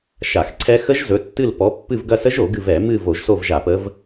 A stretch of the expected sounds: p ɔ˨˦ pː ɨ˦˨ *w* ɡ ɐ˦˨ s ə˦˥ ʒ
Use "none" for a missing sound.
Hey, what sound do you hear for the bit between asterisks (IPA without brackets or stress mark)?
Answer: v